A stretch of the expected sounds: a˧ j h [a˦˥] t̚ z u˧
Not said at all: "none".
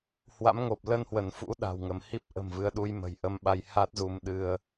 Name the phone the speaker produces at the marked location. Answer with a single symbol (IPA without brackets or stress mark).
a˦˥